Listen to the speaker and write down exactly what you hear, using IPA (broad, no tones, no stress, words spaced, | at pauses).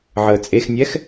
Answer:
ʕəːt͡sʼexnʲɛx